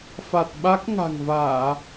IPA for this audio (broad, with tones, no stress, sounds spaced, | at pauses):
f a˨˩ t̚ ɓ a˦˥ k̚ ŋ a̤˨˩ ŋ v aː˧˩˨